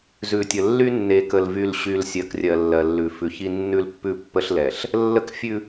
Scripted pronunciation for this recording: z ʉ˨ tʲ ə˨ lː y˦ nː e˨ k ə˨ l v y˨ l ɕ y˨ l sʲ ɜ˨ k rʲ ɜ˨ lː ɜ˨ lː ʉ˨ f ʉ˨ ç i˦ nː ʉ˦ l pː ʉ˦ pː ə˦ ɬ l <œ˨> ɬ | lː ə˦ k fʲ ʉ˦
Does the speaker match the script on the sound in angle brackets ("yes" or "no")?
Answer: no